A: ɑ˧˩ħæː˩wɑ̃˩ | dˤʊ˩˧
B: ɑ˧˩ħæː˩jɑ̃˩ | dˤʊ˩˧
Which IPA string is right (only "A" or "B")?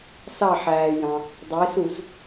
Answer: B